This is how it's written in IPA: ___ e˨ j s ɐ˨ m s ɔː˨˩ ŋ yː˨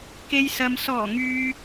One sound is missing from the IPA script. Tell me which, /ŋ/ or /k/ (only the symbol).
k